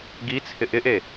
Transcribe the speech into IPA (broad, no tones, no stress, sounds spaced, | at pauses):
ɡ i t͡sʰ ɪ ʔ ɪ ʔ e